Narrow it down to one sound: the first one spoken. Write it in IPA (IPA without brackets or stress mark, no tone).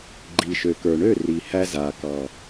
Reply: ɡ͡ǃ